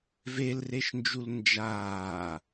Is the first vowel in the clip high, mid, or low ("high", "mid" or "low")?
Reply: mid